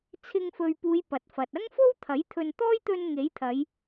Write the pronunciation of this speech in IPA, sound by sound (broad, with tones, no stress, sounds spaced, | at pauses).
t͡sʰ ɪ˧ ŋ f ɵ˨ ɥ p uː˨˧ j p ɐ˨ t̚ f ɐ˨ t̚ ɐ˥ ŋ f o˥ w t̪ʰ ɐ˨˥ j t̪ʰ ɵ˨ n t̪ ɔː˥ j t̪ ɵ˧ n ŋ e˨˥ j t̪ʰ ɐ˨˧ j